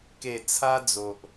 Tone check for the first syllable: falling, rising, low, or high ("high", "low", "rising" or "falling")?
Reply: low